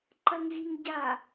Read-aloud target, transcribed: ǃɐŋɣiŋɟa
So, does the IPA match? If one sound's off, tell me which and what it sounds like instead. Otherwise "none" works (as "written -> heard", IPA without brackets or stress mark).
none